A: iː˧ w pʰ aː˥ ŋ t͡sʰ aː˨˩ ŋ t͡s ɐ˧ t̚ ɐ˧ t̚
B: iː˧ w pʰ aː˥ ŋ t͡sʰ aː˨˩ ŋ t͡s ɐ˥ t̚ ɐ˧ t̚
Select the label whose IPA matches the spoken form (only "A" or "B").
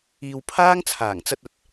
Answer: A